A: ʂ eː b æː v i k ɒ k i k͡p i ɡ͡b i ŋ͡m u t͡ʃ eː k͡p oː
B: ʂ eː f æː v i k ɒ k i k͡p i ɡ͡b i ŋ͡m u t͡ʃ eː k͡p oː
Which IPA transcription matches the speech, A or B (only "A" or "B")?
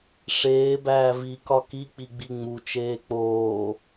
A